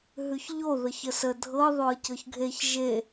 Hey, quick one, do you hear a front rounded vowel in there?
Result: no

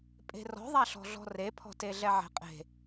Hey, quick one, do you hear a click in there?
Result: no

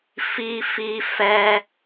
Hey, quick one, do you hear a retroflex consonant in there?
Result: no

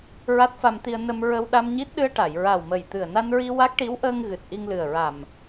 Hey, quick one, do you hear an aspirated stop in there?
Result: no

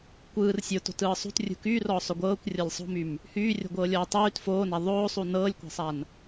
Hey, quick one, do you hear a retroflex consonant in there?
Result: no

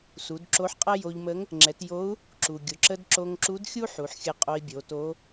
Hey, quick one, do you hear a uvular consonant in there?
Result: yes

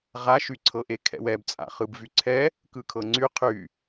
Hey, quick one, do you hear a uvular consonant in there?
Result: yes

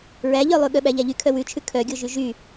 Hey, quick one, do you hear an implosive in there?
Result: yes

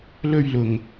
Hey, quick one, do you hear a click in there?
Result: no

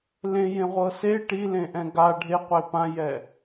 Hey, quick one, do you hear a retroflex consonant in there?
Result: yes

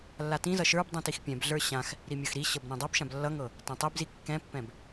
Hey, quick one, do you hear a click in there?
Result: no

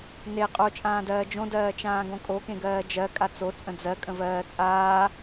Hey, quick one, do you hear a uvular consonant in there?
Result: yes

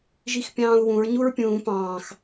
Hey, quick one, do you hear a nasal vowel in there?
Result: yes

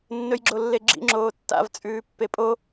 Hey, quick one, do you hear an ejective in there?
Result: yes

